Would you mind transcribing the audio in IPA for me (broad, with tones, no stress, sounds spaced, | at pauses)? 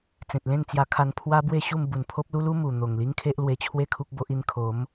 t͡s ẽ˨ t̚ l ẽ˥˧ n t͡s j a˧ kʰ a˧ n pʰ w a˦ b w e˥˧ ɕ u˥˧ m b u˨˩ n pʰ o˦ p̚ l u˦ l u˦ m u˨˩ n̪ o˨˩ ŋ l i˦ ŋ kʰ e˦ ʔ l w e˧ t͡ɕʰ w e˥˧ kʰ u˦ k̚ b o˦ ʔ i˧ n kʰ o˨˦ m